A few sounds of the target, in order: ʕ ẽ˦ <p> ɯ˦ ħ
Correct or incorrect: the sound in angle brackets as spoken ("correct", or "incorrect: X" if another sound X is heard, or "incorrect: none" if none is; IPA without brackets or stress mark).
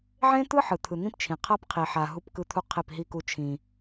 incorrect: t̪